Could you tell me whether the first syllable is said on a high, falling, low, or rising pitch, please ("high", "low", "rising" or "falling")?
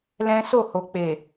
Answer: high